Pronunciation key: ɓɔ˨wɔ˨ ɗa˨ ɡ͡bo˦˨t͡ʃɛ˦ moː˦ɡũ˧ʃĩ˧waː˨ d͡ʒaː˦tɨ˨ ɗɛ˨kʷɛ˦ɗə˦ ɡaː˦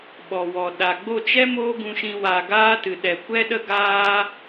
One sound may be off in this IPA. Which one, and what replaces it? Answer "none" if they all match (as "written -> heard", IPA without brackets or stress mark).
d͡ʒ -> ɡ